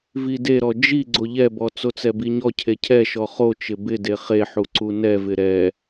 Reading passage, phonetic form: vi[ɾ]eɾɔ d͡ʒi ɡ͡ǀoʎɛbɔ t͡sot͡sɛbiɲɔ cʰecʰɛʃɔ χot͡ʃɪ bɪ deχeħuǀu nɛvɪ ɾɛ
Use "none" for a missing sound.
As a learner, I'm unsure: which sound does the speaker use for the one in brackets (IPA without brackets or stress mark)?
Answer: d